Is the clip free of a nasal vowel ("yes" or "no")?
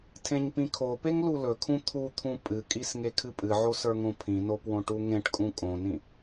no